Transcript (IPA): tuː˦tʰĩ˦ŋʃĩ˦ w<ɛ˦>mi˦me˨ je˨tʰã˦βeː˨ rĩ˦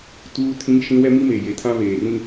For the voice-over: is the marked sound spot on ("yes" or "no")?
yes